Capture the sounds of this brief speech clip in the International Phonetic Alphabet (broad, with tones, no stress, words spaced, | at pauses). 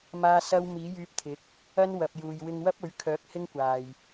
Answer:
maː˥sɐ˥w miː˨˥jyː˧p̚t̪ʰɪ˨˥k̚ | ɐ˥nwɐ˨p̚juː˨j wɪ˧ŋwɐ˥p̚ɵ˨˥ɥkʰœː˨˥k̚ hɪ˥ŋkʷaː˨j